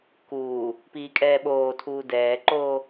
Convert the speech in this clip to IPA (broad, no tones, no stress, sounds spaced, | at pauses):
k uː | p iː kʼ ɛː ɓ oː tʰ uː d ɛː ǃ oː